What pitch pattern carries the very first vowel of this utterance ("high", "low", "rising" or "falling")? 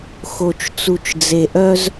low